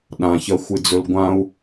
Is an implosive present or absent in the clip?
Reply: present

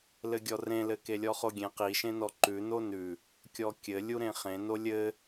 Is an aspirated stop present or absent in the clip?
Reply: absent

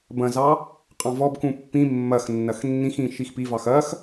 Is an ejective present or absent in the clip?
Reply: present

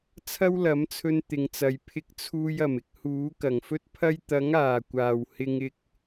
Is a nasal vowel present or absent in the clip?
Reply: absent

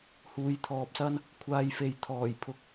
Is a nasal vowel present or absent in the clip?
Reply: absent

